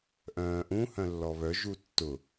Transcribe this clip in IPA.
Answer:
ʔ œ̃ː ʔ ũ h œ̃ lː ɔ β œ ʒ u tː ʊ

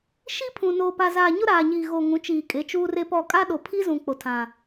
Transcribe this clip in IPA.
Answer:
ʃ i˦ pʰ ũ˨ n oː˨ p a˨ z aː˨ ɲ ʊ˦ ɾ aː˨ ɲ iː˨ ɣ o˨ ŋ ũ˨˦ t͡ʃ iː˨ kʼ e˨˦ t͡ʃ uː˦ r e˦ p ɔ˦˨ kʼ a˦ ɗ o˨ pʰ i˦ z ũ˨ k͡p o˨ tʰ ã˨

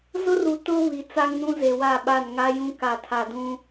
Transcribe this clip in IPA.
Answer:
z ʊ˦ r u˨ t ʊ˦ β i˨ t͡s a˦ ŋ n ũ˦ z e˨ w a˦˨ ɓ a˦˨ n ŋ a˦ j ũ˦ k a˨ tʰ a˨ d ũ˦

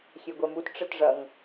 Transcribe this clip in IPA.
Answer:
xʲ e ɡʷ ɛ m u t ʈ͡ʂ ɘ t ʐ ɐ ŋ

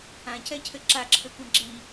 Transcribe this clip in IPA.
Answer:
ã c ɛ cʰ ɘ ǁ a ǁʰ ɘ kʷ ã ɡ͡ǁ i

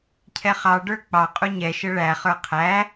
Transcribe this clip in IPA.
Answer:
cʰ ɛ χ ɑ ɖ ə˞ k͡p ɑ qʼ u ɲ ɛ ʃ ə ɭ æ χ ə˞ qʰ æ

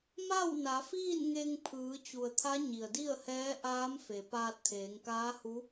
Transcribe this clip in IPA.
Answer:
m a˥˨ w n a˩˧ f iː˥˨ n ŋ e˧ ŋ pʰ ɯː˩˧ t͡ɕ u˩ ə̯ t̪ʰ a˧˥ ɲ i˩ ə̯ d i˥˨ ə̯ h ɛː˧˥ ʔ aː˧˥ m f e˩ p aː˧ t̚ t̪ʰ eː˩˧ ŋ k aː˧˥ h u˧˥

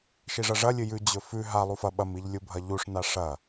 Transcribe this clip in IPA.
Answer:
ʃ i ʐ ɐ ʐ ɐ lʲ ɨ j ʉ d͡ʑ ɵ f ʉ ɦ a lˠ u f ɐ ɓ ɐ m i ʎ lʲ u bʱ ɐ ʎ u ʂ n a ʂ ɐ

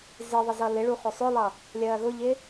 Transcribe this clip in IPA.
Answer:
z ɪ ðˤ ɪ z ʌ l ɪ ɭ u χ ʊ sˤ ʊ lˠ ʌ | lʲ ɜː ɣ ʊ ʎ ɪ

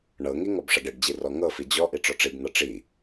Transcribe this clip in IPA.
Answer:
ɳ ɤ ŋ i ŋ ɔ b ʂ ʌ ɖ e ɖ d͡ʑ i r ɔ ŋ ɤ f i d͡ʑ ɔ ʔ i ʈ͡ʂ ɔ ʈ͡ʂ i b n̪ ʌ ʈ͡ʂ i

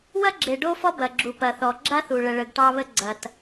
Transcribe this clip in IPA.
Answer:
w ɐ˥ ɡ͡ǁ e˩ ɖ o˥ f ɔ˥ b ɐ˩ ɡ͡ǁ u˩ p ɐ˩ θ ɔ˩ ɡ͡ǁ a˥ θ u˩ ɭ ə˩ ɭ ə˩ ɡ ʈ ɑ˥ β ə˥ ɡ͡ǀ ɐ˩ t

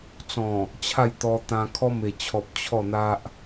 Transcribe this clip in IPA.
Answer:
t͡s ɔ̃˨˩ | t͡ɕʰ a˥˧ j t̪ ɔ˧ t̪ ã˧ kʰ ɔ˦ m e˨˩ t͡ɕʰ ɔ˨ p̚ t͡ɕʰ ɔ˥˧ n̪ a˦ ʔ

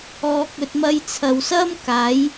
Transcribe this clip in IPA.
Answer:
ɔː˧ k̚ ɵ˧ t̚ m ɐ˧ j t͡sʰ ɐ˨ w s ɐ˥ m k aː˨˥ j

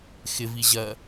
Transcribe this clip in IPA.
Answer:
x ɪ v i ʑ ɜ

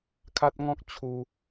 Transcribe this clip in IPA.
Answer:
kʰ a˦ t̚ ŋ ɔ̃˦ k̚ t͡ɕʰ u˧

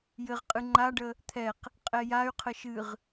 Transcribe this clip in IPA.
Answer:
j ɘ ʁ qʼ ɨ ŋ͡ǃ a ɖ ə | t̪ʰ ɛ q | qʼ ɛ j a y̯ qʰ ə ʃ ɨ ʁ

